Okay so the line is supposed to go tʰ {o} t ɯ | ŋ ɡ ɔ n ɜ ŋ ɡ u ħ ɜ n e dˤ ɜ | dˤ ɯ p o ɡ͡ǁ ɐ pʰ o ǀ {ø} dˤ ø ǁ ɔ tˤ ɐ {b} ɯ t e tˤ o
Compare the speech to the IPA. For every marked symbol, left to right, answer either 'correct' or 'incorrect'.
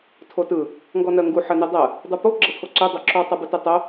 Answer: correct, correct, correct

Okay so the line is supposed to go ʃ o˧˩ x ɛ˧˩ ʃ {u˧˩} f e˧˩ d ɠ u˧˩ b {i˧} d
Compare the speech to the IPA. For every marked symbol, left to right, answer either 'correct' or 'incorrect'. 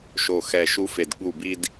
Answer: incorrect, correct

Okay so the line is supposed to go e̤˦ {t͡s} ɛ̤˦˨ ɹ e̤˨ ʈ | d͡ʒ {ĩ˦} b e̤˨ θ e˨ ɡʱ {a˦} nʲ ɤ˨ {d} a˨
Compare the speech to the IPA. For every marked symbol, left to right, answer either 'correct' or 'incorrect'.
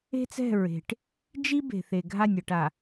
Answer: correct, incorrect, incorrect, incorrect

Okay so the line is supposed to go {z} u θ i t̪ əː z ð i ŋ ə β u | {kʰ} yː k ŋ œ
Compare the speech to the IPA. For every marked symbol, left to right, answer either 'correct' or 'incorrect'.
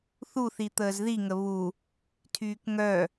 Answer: incorrect, incorrect

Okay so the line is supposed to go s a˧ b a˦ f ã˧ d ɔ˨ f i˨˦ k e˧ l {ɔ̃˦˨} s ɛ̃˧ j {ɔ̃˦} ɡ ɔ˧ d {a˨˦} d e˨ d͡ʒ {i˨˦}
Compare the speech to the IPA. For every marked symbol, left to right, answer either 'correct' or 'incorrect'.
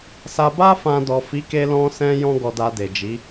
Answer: incorrect, correct, incorrect, correct

